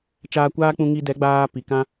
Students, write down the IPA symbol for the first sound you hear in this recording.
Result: t͡ʃ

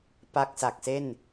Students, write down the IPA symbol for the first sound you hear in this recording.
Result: p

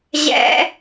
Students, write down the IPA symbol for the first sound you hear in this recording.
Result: ʑ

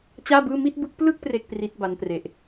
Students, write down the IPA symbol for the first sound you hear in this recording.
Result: t͡ɕ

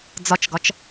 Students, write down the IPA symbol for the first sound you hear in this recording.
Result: d͡z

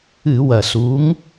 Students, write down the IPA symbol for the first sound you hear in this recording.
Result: ɨ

